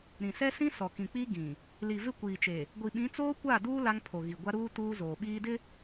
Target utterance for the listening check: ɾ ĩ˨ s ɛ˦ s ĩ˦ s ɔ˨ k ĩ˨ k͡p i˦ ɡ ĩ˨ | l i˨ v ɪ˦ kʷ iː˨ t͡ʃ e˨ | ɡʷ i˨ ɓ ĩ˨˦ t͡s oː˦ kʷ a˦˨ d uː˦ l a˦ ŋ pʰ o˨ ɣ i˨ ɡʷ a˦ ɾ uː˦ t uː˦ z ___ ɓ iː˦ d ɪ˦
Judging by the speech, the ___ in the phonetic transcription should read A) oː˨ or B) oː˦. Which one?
A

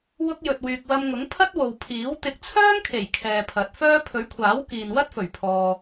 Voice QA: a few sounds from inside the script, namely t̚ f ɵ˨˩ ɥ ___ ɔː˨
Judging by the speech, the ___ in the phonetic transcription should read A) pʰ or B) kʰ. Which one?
A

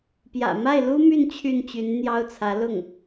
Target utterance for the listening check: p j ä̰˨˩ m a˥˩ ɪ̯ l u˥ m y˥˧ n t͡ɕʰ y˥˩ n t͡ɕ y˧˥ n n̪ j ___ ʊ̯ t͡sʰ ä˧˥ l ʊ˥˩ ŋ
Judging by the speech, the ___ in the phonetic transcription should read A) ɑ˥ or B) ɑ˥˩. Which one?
A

